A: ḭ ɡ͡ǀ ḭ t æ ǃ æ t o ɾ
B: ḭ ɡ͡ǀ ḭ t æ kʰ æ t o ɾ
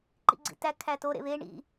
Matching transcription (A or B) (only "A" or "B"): B